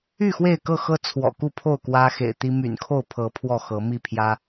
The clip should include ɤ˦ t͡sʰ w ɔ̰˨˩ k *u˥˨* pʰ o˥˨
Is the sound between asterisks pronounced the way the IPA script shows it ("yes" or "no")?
yes